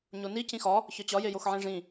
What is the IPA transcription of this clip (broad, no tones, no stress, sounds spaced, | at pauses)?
ɲ o n i c ĩ x ɒ | ç ɒ t͡ɕ ɒ j e j o x ʕ ĩ ʐ ĩ